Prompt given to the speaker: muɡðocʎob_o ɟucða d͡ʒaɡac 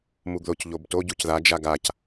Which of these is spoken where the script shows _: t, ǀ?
t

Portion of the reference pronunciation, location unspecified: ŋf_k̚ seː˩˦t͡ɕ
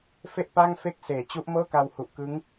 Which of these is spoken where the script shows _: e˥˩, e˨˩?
e˥˩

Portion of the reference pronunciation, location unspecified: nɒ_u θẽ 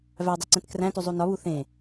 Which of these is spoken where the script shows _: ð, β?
β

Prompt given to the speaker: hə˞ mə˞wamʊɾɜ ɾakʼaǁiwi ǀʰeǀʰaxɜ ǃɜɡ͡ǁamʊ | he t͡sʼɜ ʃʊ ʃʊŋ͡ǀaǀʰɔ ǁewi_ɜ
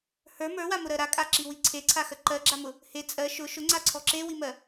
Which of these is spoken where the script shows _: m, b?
m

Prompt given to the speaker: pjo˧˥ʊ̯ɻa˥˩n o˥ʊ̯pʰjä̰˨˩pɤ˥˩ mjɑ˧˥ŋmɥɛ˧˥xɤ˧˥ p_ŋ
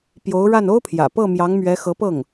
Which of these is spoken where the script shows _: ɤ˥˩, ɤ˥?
ɤ˥˩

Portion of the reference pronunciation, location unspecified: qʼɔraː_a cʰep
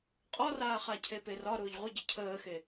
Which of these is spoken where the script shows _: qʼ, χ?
χ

